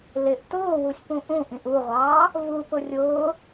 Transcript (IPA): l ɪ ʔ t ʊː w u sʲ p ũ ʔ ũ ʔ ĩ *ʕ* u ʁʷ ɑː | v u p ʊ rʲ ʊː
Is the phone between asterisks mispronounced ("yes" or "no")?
yes